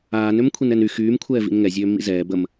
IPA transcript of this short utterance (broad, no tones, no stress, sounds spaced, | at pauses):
aː n ø m kʷʰ i n ɛ n y x yː m kʷʰ ɛː v ḭ n ŋ ɛ zʲ øː mː ḭ z ɛː b ə m